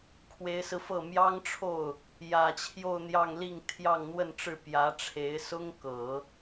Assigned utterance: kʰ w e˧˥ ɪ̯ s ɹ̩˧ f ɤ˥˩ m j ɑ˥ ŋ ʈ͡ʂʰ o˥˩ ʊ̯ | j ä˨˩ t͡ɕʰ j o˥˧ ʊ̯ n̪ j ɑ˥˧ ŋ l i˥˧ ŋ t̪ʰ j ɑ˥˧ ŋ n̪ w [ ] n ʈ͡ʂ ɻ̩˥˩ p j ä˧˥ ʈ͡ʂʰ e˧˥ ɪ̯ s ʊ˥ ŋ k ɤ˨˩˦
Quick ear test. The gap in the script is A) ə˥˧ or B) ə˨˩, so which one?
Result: A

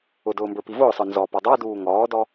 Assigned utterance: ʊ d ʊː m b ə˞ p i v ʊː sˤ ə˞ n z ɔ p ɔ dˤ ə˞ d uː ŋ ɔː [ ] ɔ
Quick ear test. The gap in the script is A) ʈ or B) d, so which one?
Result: B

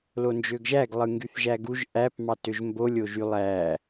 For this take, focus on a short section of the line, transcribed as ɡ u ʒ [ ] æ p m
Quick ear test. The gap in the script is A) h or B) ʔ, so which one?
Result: B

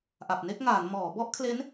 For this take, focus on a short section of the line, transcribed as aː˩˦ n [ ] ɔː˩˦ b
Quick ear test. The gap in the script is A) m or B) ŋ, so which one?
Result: A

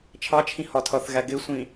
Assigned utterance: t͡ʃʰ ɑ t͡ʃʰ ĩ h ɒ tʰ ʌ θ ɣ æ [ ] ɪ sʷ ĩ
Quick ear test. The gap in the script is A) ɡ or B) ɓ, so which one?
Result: A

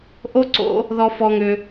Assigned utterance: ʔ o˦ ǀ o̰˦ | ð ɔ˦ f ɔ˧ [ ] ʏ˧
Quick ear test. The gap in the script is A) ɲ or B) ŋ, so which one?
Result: B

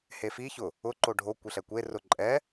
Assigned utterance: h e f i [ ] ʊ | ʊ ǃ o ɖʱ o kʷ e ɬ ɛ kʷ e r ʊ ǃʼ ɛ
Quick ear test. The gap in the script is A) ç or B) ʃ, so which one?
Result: A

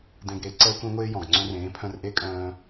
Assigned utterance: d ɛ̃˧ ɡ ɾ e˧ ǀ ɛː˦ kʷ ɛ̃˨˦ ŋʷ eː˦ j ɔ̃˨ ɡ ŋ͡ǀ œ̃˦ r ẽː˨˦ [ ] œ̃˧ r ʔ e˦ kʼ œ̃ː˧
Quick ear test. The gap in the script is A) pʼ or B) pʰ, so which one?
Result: B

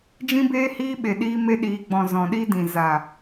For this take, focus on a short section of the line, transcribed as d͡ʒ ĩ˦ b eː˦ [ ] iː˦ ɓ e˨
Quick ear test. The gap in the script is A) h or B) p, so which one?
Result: A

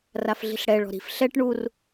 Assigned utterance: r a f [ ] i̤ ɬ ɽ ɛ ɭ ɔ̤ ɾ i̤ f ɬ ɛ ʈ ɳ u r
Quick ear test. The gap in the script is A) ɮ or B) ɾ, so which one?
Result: A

